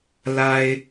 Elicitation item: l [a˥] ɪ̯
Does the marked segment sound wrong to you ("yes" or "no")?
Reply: no